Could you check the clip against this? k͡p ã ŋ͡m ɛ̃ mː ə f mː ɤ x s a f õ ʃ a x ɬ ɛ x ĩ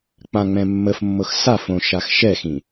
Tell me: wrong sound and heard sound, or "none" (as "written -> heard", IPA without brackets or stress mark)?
ɬ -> ʃ